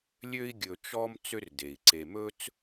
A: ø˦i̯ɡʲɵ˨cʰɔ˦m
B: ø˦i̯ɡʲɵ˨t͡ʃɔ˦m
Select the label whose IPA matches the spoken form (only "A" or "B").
B